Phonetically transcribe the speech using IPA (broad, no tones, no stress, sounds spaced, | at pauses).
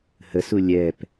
h ə s u lʲ ɛ p